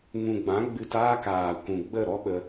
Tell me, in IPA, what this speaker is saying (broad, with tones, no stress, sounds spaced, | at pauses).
ŋ ũ˨ ɡ͡b ã˨˦ ɡ͡b ɨ˧ t aː˦ k aː˨ kʷ ũ˨ ɡ͡b ə˦˨ ɾ ɔ˦ ɓ ə˦